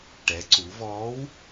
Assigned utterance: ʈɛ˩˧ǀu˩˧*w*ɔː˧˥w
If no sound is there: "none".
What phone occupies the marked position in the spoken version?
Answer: v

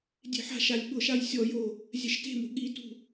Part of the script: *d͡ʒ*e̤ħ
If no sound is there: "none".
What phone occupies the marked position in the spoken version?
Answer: dʲ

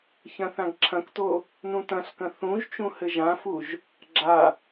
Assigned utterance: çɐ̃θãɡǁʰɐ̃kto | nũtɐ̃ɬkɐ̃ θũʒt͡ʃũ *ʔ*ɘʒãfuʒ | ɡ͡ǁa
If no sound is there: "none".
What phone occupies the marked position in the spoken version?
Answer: h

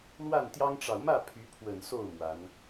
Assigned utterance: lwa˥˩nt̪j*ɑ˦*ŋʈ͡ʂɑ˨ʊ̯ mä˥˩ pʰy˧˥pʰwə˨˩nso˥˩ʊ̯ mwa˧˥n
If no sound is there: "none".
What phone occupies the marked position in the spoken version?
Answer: ɑ˥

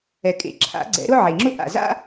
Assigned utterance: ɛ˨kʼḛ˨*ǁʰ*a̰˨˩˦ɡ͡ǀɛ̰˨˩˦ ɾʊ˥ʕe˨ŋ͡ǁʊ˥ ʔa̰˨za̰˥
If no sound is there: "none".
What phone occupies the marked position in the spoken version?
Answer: ǁʰ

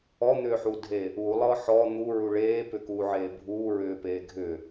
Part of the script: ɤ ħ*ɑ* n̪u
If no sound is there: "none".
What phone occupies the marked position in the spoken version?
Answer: ɔ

